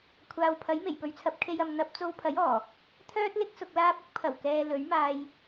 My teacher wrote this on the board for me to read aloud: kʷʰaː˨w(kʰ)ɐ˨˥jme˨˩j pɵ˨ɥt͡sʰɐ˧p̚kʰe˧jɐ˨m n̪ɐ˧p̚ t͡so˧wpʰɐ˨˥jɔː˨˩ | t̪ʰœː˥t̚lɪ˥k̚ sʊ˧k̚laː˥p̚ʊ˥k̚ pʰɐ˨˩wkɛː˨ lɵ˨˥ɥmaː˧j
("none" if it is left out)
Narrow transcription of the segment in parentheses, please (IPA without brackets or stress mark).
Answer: pʰ